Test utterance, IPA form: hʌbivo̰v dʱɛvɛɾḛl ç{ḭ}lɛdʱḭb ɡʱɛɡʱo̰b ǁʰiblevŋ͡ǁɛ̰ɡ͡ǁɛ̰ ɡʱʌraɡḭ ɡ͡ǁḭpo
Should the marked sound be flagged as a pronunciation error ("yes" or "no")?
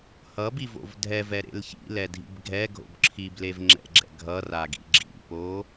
no